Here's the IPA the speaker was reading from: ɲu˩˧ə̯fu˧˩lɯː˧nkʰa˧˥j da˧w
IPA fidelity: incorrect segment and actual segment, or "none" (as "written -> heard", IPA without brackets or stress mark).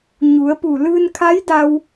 f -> p